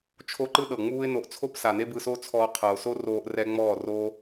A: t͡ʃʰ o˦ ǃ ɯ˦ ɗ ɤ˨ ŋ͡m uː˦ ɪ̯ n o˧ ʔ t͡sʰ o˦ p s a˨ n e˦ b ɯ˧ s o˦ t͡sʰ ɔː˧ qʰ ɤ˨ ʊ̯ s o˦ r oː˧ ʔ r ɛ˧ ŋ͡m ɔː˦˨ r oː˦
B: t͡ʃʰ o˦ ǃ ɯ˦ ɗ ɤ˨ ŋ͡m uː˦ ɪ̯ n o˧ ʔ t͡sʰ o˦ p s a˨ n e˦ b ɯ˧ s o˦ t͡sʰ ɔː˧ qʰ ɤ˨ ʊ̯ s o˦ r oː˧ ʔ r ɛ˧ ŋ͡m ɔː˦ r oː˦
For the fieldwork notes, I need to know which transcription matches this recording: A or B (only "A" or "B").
A